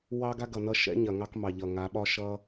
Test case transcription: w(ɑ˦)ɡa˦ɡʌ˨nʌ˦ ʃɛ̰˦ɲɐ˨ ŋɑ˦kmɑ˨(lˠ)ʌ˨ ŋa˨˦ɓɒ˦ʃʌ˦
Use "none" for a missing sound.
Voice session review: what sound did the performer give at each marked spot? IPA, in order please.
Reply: ɑ˦, ʎ

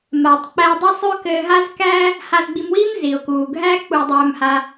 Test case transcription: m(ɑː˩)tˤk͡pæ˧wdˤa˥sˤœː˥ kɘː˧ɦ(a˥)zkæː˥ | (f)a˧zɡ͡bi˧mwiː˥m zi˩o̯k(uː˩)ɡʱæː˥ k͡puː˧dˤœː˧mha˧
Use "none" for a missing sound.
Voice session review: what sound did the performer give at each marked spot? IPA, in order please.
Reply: aː˩, a˥, h, uː˩

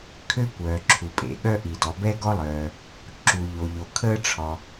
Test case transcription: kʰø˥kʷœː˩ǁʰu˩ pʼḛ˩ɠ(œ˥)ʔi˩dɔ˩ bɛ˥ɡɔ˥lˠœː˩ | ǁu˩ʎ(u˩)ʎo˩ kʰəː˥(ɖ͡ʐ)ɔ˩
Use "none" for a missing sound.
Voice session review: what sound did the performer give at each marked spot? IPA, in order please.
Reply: œ˥, o˩, ʈ͡ʂʰ

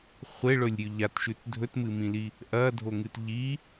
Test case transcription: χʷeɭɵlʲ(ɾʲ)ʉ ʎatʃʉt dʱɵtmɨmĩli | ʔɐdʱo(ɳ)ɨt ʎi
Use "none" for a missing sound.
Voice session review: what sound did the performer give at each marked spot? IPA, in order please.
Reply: ɾʲ, ŋ

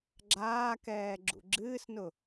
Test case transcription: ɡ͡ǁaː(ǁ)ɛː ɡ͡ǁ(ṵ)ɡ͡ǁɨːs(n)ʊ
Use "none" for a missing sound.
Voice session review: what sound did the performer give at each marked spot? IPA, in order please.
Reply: k, ṵ, n

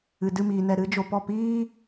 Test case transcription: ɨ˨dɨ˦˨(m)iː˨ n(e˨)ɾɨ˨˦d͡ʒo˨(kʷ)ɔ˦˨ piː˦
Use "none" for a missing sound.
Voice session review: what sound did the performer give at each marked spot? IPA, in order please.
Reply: m, ɛ˨, p

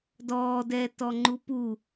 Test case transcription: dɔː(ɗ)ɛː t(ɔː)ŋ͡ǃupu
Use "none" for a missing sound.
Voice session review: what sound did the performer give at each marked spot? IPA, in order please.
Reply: d, ɔ

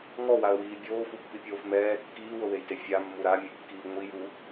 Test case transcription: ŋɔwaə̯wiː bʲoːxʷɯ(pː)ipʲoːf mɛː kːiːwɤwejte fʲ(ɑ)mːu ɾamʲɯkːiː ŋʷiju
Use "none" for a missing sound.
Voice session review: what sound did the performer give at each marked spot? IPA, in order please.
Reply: pː, a

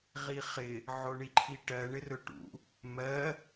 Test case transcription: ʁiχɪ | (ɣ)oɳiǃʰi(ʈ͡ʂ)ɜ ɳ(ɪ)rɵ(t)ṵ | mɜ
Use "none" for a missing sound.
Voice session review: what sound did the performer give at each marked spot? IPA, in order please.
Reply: ʕ, ʈ, ɪ, ʈ

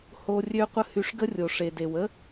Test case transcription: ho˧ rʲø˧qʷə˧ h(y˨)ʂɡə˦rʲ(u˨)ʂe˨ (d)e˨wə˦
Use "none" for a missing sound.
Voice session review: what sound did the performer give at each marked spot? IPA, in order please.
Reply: y˧, o˨, d

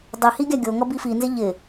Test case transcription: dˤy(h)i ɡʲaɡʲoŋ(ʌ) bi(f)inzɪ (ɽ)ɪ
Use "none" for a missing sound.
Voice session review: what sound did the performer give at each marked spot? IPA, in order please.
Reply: h, ʌ, f, ʎ

